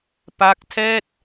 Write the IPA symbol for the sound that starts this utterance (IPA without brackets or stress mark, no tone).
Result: p